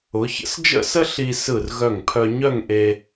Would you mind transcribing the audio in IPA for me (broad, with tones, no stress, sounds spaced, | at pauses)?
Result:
ʊ˩˧ ç ə̰˥ s d͡ʒ ə̰˥˧ s ə˥ ɬ i˧ s ɯ˧˩ r ɣ œ˧˩ ŋ pʰ œ˧ ɲ œ˥˧ ŋ ʔ e˧